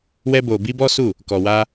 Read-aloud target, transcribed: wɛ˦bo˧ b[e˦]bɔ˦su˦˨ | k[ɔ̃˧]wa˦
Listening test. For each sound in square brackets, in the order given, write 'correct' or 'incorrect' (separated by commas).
incorrect, incorrect